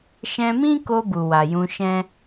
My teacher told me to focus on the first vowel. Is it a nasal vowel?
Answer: yes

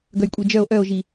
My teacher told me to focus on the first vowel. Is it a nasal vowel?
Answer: no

